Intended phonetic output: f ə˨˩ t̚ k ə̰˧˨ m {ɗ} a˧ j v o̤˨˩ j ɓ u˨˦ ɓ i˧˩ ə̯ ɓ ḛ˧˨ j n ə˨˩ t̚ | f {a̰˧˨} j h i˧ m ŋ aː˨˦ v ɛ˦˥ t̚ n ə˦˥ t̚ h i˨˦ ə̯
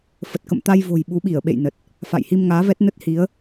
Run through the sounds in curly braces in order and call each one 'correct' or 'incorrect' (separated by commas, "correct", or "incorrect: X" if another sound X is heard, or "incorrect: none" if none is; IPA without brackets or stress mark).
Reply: incorrect: t̪, correct